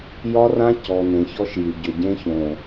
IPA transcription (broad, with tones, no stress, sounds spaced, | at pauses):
j ɒ˦ r ã˦ c ɔ˨ n ẽ˨ ç ɔ˦ ʃ j y˨ ɟ ʏ˨ ɟ ẽ˦ ç õ˨